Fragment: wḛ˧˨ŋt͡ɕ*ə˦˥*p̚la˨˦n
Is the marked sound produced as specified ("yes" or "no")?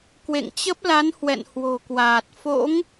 yes